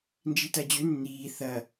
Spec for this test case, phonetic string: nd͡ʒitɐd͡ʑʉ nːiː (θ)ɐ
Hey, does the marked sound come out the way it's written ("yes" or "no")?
yes